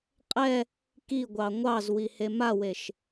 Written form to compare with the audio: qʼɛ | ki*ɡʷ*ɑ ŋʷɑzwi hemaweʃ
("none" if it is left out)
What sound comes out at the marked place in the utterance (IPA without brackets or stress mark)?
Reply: ɡʷ